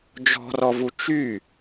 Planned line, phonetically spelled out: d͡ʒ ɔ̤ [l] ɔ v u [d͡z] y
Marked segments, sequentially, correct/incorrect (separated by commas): incorrect, incorrect